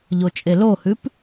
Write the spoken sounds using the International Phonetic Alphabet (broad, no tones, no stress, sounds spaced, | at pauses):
ʎ o t͡ʃʼ e l o h ʉ p